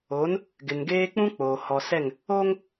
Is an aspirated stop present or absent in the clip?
absent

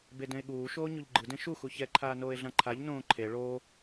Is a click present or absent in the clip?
present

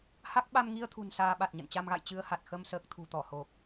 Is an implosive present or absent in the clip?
present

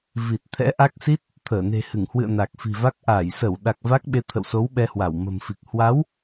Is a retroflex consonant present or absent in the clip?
absent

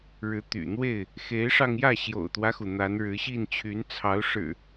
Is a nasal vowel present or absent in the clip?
absent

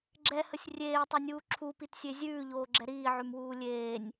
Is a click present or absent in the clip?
present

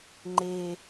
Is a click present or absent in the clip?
present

